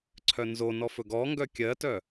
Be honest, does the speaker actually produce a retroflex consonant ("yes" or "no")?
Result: no